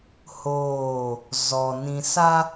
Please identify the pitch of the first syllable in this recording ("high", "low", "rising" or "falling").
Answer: falling